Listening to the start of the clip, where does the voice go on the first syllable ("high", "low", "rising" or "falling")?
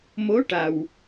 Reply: rising